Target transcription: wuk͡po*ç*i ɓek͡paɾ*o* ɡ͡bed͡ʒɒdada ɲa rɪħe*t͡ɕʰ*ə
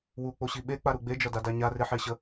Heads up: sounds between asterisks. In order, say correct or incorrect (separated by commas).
incorrect, incorrect, incorrect